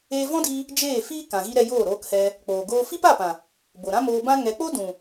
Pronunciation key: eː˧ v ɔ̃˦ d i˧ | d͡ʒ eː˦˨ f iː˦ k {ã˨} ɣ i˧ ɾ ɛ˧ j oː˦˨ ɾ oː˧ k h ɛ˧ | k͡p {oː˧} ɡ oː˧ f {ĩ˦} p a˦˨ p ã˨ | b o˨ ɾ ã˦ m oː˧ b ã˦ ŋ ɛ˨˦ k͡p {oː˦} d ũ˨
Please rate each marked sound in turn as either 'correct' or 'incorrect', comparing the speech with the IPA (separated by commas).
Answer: correct, incorrect, incorrect, incorrect